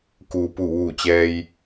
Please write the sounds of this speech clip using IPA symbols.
k uː˩ p u˧˩ ʋ uː˧˩ t͡ɕ ɛː˧ j

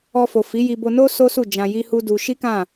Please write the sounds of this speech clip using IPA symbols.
ɔ˧ f o˨ f i˨˦ j i˧ b o˧ n o˦ s o˦ s u˦˨ d͡ʒ ã˧ j i˦ h u˦ d u˧ ʃ i˦ k ã˦˨

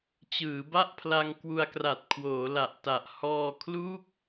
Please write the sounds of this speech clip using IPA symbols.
t͡ɕ ɯː˩˦ b a˥˩ ʔ pʰ l a˧ ŋ k w u˧ a̯ k r a˨˩ t̚ kʰ w oː˩˦ l a˨˩ ʔ t a˨˩ ʔ h ɔː˧ kʰ l u˥˩ k̚

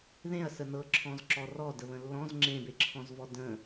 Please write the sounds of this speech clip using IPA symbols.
ð ẽ ɐ̯ s ə n ɤ ǁʰ ɔ̃ z ǁ ɔ r ɔ d ə β ə̃ lː ɔ̃ z ŋ͡ǁ ẽ b e ǁʰ ɔ̃ z v ɔ d ə̃

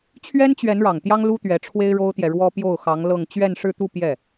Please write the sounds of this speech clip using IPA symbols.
t͡ɕʰ ɥ ɛ˥ n t͡ɕ ɥ ɛ˧˥ n ɻ ɑ˨˩ ŋ t̪ j ɑ˥ ŋ l u˥ t̪ ɥ ɛ˧˥ ʈ͡ʂʰ w e˥ ɪ̯ ɻ o˥ ʊ̯ t̪ j ɛ˨ ɻ w ɔ˥ p j o˥˩ ʊ̯ x ɑ˧˥ ŋ l ɤ˥˧ ŋ t͡ɕ ɥ ɛ˥˧ n ʂ ɻ̩˥˧ t̪ u˥˧ p j ɛ˥˩

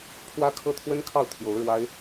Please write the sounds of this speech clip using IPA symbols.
pʰ w ä˥ kʰ ɤ˥ t̪ʰ w ə˥ n kʰ ɑ˥˩ ʊ̯ t̪ʰ j o˧˥ ʊ̯ ɻ w a˥ ɪ̯

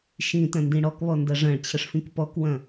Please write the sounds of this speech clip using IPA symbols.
ʃ ĩ t ɐ̃ n d ĩ ɽ ɔ k β ɔ n d ɐ ʐ ɐ̃ ɭ t͡ɕʰ ə ʂ f ĩ k p ɔ k w ɐ̃

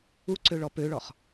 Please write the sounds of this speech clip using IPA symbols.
u ǀ ø ɭ ɔ p ø ɭ ɔ χ

